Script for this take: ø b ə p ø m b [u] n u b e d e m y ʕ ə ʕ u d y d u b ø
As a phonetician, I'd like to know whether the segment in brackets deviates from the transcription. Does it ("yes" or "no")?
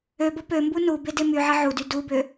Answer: no